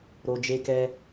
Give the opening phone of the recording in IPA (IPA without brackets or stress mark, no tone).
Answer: ɾ